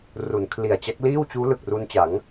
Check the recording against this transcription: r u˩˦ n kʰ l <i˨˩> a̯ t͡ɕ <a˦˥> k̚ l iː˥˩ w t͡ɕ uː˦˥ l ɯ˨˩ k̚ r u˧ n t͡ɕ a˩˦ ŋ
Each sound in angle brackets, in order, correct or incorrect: correct, correct

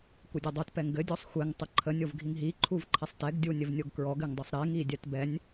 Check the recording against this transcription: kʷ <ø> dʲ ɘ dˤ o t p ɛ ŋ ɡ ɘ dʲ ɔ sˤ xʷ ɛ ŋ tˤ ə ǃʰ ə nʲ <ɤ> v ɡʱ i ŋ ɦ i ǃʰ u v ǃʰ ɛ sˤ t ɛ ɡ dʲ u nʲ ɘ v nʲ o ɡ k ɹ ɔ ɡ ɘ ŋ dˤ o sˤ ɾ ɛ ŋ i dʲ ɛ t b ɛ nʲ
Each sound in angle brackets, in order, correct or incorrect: incorrect: ɘ, incorrect: o

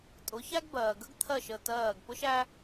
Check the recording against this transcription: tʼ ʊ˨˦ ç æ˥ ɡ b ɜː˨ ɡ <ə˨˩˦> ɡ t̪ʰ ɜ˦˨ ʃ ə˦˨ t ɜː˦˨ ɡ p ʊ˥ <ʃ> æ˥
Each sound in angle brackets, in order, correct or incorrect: incorrect: ə˥, correct

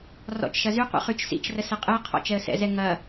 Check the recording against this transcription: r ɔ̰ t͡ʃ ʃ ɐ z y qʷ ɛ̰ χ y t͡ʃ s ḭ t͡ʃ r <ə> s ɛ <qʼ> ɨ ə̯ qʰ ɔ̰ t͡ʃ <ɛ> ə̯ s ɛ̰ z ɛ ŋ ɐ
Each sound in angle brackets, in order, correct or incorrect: correct, correct, correct

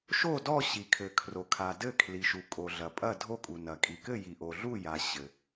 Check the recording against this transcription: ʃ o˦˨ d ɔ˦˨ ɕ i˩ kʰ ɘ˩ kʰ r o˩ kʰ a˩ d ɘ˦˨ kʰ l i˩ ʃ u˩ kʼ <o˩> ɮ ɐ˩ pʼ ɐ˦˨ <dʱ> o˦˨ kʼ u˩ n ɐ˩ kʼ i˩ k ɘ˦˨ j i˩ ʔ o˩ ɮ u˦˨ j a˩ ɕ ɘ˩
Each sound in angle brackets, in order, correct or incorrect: correct, correct

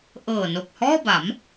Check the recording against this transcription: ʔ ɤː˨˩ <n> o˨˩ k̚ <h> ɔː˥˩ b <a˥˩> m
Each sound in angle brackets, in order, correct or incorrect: correct, correct, incorrect: a˩˦

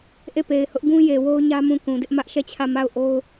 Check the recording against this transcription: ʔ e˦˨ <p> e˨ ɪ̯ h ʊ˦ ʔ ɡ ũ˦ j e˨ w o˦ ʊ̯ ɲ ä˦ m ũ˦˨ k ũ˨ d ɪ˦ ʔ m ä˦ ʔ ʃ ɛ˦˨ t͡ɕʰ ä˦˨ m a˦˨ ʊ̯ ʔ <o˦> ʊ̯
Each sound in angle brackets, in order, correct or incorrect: correct, correct

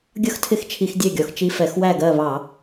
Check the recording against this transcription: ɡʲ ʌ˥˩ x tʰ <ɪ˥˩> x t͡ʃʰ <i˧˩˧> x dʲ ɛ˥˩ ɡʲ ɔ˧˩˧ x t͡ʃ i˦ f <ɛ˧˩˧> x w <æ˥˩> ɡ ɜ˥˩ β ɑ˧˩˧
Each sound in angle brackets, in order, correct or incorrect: correct, correct, correct, correct

